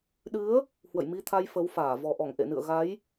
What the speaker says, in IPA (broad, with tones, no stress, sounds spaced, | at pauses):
ɗ ɨ˨˦ ə̯ | h w ə̰˧˨ j m i˧ t̪ʰ a˧ j f ə˨˦ w f aː˧˩ v ɔ˨˩ ʔ ɔ˧˩ ŋ ʔ ḛ˧˨ n ɨ̰˧˨ ə̯ ɣ a˨˦ j